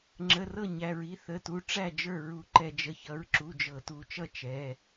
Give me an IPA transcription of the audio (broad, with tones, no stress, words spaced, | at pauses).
ŋ͡ǁə˩˧˩rɤ˥˩ ɲæ˩˧˩ɹi˩˧˩θə˩˧˩tu˩˧˩ ʈ͡ʂæ˥˩d͡ʒə˞˥˩ ɹu˧˩˧ǃɛ˧˩˧ d͡ʒə˩˧˩çʌ˩˧˩ɹǁu˩˧˩ d͡ʒɤ˧˩˧ tu˧˩˧t͡ʃʌ˥˩ t͡ʃɛ˩˧˩